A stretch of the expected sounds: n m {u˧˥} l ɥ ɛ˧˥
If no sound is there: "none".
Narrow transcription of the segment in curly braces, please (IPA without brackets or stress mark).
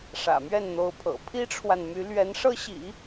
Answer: y˧˥